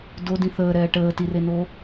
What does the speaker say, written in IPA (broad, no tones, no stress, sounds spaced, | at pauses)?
d o d ĩ θ əː ɾ ɛː ʈ əː t i r e n o